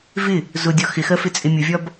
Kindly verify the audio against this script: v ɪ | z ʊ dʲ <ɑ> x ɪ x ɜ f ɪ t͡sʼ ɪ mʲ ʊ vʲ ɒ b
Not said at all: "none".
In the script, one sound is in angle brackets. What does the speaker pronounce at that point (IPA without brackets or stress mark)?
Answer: ɒ